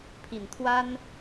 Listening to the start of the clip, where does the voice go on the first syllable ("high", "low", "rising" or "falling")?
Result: low